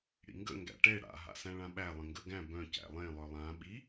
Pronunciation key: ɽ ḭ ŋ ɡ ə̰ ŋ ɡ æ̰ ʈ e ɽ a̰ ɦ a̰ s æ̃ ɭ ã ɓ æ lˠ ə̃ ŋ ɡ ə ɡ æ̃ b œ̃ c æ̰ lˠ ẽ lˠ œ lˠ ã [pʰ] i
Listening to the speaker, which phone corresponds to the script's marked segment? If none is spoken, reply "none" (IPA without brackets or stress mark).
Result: ɓ